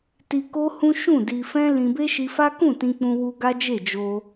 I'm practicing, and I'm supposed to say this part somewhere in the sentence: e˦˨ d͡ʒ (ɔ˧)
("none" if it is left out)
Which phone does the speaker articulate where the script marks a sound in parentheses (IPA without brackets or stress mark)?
o˧